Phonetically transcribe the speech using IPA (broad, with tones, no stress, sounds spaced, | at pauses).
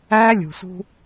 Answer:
æː˦ lʲ ṳ˨ s ṳ˦